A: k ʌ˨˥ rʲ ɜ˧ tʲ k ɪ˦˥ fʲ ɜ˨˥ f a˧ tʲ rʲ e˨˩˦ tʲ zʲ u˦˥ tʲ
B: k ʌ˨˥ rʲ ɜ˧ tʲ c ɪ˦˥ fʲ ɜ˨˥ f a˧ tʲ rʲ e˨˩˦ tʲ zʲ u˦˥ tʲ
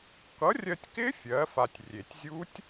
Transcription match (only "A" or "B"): A